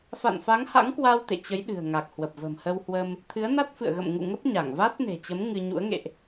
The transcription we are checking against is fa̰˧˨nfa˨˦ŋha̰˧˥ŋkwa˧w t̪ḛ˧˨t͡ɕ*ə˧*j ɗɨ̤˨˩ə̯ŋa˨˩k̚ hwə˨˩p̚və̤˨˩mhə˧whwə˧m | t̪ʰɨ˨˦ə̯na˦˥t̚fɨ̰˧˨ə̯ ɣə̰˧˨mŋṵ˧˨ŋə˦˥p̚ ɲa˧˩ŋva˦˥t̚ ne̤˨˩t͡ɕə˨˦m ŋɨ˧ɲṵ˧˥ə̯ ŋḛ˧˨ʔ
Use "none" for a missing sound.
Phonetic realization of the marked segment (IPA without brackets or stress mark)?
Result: ə˨˦